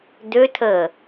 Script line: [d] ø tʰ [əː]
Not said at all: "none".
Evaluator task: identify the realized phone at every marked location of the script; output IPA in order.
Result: d, əː

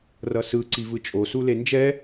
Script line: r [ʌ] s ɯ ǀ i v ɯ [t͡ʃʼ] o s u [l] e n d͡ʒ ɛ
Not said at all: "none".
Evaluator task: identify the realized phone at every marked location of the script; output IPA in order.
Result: ʌ, t͡ʃʼ, l

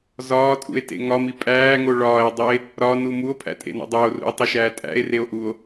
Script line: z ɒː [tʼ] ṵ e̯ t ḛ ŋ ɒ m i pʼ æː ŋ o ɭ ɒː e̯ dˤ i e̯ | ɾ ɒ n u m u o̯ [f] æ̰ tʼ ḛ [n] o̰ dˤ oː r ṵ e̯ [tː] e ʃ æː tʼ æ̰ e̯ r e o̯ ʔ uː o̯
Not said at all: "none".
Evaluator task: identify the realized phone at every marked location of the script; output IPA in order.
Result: tʼ, pʰ, n, tˤ

